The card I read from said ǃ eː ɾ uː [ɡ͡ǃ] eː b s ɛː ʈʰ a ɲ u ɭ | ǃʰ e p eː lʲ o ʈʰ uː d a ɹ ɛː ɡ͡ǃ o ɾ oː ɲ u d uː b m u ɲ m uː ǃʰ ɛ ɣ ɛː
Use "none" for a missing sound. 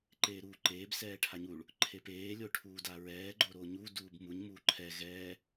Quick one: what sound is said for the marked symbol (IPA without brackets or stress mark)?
ǃ